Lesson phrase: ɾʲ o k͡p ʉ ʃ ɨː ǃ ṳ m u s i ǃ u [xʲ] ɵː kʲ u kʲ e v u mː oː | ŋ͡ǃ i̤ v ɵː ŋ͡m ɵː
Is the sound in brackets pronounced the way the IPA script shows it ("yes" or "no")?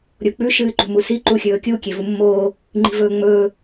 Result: yes